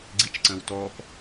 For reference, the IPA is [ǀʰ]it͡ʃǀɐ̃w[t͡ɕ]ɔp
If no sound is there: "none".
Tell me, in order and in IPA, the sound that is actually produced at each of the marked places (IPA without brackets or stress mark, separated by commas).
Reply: ɡ͡ǀ, t